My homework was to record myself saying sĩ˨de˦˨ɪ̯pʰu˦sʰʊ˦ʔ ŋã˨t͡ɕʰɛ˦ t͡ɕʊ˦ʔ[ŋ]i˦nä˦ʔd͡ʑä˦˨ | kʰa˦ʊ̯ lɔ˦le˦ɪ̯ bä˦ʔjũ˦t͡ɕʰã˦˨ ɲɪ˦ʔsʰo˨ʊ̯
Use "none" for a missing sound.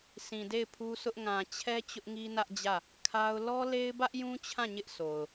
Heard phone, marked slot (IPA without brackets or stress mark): ŋ